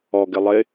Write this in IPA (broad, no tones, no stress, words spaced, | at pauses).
ɔɡɪ lˠɪ